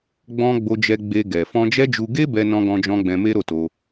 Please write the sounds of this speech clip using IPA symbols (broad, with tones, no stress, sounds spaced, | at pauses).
ɡ͡b ɔ̃˧ ɡ͡b o˧ d͡ʒ ɛ˧ ɡ͡b e˧ ɡ ɛ˨ f ɔ̃˧ d͡ʒ ɛ˦ d͡ʒ u˧ ɡ e˦ b ɛ˧ n ɔ̃˧ ɡ ɔ̃˧ d͡ʒ ɔ̃˧ ɡ͡b ɛ̃˧ m e˦ ɾ o˦˨ t o˧